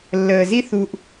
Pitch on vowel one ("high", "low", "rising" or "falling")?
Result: low